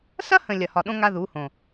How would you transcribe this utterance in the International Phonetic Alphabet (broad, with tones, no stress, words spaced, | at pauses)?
sɐ˦hə̃˨ lʲɐ˨hɒ˨ɗõ˦ ŋa˦ðu˨˦hõ˨